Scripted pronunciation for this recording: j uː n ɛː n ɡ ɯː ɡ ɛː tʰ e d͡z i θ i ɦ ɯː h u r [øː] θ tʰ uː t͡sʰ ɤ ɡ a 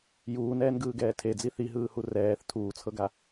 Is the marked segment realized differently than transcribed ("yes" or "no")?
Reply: yes